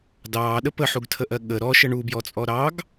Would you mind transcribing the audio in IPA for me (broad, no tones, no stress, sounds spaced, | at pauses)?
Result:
d ɑː ɗ ə p ə ħ u ɡ tʰ ə ʔ ɜ ɠ ə ɾ ɔ ʃ ə ɳ u b j ɔ t͡sʼ ɔ ɾ ɑ ɡ